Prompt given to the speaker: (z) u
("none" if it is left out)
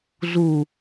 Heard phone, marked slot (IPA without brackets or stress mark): z